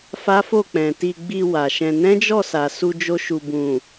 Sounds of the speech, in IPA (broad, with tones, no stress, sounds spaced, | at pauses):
f a˦ f o˦˨ k͡p ɛ̃˨ t i˧ ɡ͡b i˧ w a˨ ʃ ɛ̃˧ n ɛ̃˦ d͡ʒ ɔ˦˨ s a˨ s u˧ d͡ʒ o˧ ʃ u˨ b ũ˨